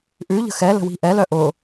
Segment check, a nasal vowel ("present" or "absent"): absent